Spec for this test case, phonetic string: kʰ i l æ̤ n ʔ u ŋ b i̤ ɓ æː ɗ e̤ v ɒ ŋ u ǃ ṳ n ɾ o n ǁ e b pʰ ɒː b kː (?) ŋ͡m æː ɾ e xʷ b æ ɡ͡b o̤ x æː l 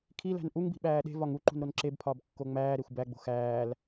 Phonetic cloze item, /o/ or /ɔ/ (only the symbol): o